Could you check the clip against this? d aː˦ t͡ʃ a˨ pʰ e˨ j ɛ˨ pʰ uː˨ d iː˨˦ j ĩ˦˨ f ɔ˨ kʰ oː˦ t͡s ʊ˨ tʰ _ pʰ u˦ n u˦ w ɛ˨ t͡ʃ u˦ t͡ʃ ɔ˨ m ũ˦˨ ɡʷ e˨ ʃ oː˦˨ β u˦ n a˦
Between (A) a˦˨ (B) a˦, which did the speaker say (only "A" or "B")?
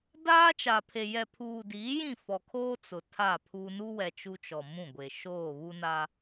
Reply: A